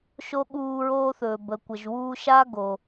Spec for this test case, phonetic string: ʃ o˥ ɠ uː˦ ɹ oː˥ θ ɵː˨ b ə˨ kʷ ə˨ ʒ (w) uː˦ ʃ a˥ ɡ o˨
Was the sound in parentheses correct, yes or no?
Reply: yes